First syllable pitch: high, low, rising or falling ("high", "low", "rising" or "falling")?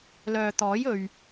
low